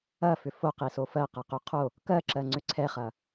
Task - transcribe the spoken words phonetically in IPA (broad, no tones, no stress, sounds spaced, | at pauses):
ɐ f ʏ f o q i s o f ɜ q ɐ q y qʰ o | k ɜ ǁ ɜ ŋ͡ǀ ʏ ǀʰ ɛ χ ɐ